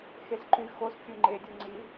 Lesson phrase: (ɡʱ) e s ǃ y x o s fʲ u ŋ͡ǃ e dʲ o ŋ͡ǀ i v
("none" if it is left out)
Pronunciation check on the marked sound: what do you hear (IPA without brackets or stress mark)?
x